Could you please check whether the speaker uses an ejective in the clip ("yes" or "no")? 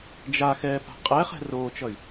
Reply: yes